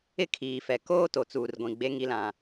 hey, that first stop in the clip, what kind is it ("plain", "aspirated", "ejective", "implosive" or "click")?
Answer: aspirated